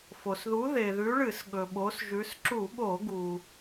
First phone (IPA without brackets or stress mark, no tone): f